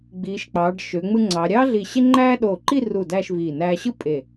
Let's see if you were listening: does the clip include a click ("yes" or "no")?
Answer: yes